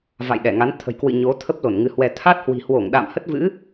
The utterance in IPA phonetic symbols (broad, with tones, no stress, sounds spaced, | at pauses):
v a̰˧˨ j ɗ ɛ˧˩ ŋ a˨˦ n t̪ʰ ə̤˨˩ j k w ɨ̰˧˨ ɲ o˨˦ t̪ʰ ə˦˥ p̚ l o˧˩ n ŋ ɨ˨˦ h w ɛ˧ t̪ʰ a˦˥ t̚ h w i̤˨˩ h w o˧˩ ŋ ɗ a̰˧˨ m h ə˦˥ t̚ v ɨ̰˧˥